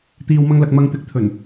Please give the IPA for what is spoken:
t̪iː˨wmɐ˧ŋlɐ˨k̚ mɐ˧ŋt̪ɪ˧k̚ t̪ʰɵ˨˩n

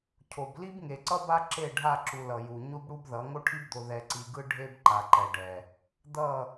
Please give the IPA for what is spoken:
cʰo˨b li˦bŋe˨ǀʌ˦ba˦ ǁe˦˨ɖʱa˦˨ǁu˨ lʌ˨ju˨ ɲu˦bɽu˦bðʌ˨˦ ŋo˦ʈʰi˦bd̪o˨ ðɛ˨ǀi˨ɡɯ˦ ɖʱe˦b ǃa˨ǃɛ˨ɖɛ˨ | d̪ʌ˦˨

